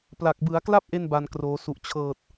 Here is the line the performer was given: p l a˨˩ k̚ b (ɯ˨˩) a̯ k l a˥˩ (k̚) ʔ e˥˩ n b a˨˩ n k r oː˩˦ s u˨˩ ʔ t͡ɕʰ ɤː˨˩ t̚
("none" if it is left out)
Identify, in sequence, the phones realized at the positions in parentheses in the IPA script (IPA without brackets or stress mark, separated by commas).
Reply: ɯ˩˦, p̚